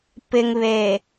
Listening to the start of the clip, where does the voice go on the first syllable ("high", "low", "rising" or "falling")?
low